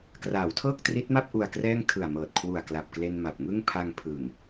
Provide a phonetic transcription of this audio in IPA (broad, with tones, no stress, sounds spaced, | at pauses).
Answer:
k r aː˩˦ w tʰ ɤː˥˩ k̚ t r i˦˥ t̚ m a˥˩ p̚ ʔ u˧ a̯ k r ɛː˥˩ ŋ tʰ ɯ˨˩ a̯ m ɤː˨˩ t̚ kʰ w u˨˩ a̯ k l a˨˩ p̚ k l e˧ n m a˨˩ p̚ ŋ ɯ˥˩ ŋ pʰ a˧ ŋ pʰ ɯ˨˩ ŋ